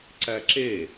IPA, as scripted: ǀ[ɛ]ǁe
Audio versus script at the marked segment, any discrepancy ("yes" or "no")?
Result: yes